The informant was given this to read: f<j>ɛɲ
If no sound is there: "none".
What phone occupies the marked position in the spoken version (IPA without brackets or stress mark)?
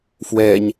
w